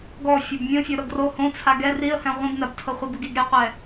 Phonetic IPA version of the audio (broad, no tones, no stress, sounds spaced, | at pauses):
ɡ ɔ fʲ o b mʲ õ fʲ o ɾ ɤ ɡ r o h õ t͡sʰ a ɡ ɛ r i ə̯ h ɛ̃ ʁʷ ĩ b n a b tʰ ɤ χʷ a b ɯ ɡ i ɡ ɾ e qʷ ɛ